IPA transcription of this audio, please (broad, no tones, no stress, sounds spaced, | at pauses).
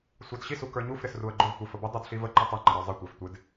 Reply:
sʷ ɑ d ɕ i s u k ə˞ ɲ u f ɾ ɪ s r u ə̯ ɡ͡ǃ ʊ v tʷ i f ə b ʊ dˤ u d ɬ i v ə ǃ ʊ tˤ ɪ ŋ͡ǃ ə ɾ ə˞ zˤ ɪ tʷ æ f tʷ ɪ d